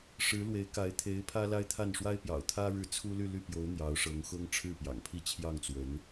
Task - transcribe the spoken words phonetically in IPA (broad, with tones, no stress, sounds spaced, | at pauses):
ʂ ɻ̩˧˥ l w e˧˥ ɪ̯ k a˧˥ ɪ̯ t̪ʰ e˧˥ ɪ̯ pʰ ä˥ l a˥ ɪ̯ t̪ʰ a˥˩ n ʂ w a˥ ɪ̯ p j ɑ̰˨˩ ʊ̯ t̪ʰ ä˥ ɻ ɻ̩˥˩ t͡sʰ u˥ l y˥˧ l y˥˩ p j o˧˥ ʊ̯ n̪ j ɑ˧˥ ʊ̯ ʂ ɤ˧˥ ŋ x ʊ˥ ŋ ʈ͡ʂʰ ɻ̩˥˩ p j ɑ̰˨˩ ŋ pʰ i˥˧ t͡ɕʰ j ɑ˥˩ ŋ t͡s w ə˧˥ n